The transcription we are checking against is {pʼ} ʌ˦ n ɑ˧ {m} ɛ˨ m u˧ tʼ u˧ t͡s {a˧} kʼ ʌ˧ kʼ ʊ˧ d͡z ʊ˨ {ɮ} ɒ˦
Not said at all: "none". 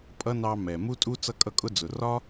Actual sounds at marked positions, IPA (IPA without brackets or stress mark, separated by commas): pʼ, m, ʌ˧, r